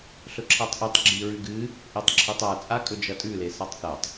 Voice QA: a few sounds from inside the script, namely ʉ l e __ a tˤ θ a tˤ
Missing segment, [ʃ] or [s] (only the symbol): s